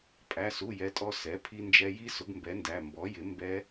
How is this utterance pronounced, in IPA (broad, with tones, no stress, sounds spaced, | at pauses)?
pʼ æ˩˧˩ s u˩˧˩ j ɛ˩˥ tʼ ɔ˧ s ɛ˩˥ pʰ i˧ n d͡ʒ ɛ˧ j i˦˥ s ʊ˩˥ ɡ m b ɛ˩˥ n d æ˩˧˩ m b ɔ˩˥ j ɪ˩˥ m b ɛ˦˥